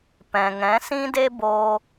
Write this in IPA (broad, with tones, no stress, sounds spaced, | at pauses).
p ɛ̃˨ ŋ ɛ̃˨˦ s ĩ˦ d e˦ b o˧